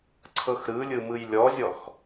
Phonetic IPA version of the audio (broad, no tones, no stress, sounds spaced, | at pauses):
ǀʰ ɤ x ɾ ɯ lʲ ɯ m ɯ j lʲ ɔ zʲ ɔ x